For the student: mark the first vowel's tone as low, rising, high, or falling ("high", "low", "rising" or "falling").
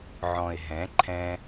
low